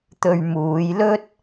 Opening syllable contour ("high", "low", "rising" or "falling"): low